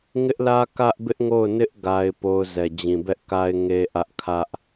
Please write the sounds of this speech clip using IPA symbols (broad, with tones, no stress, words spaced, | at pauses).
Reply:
ŋɪ˦ʔlä˦ kä˦ʔbɪ˦ʔŋo˦˨ʊ̯nɪ˦ʔ ɡa˦ɪ̯po˦ʊ̯ zɛ˨ d͡ʑĩ˨bɛ˦ʔka˦ɪ̯ ŋe˦ʔä˦ʔ kʰä˦ʔ